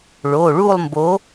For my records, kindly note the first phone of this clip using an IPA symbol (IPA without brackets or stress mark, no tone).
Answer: ɭ